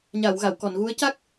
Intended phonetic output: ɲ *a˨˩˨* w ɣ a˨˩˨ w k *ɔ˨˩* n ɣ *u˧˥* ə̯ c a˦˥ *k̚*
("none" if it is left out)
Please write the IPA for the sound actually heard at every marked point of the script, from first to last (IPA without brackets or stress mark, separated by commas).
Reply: a˨˩˨, ɔ˨˩˨, u˧˥, k̚